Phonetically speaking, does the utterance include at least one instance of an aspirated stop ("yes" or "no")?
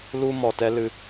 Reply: no